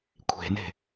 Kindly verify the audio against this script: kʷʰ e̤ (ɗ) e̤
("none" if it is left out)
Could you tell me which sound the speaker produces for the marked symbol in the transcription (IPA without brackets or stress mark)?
n